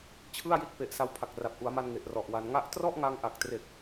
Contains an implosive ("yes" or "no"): no